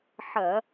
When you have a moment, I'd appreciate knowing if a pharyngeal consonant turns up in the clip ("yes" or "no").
yes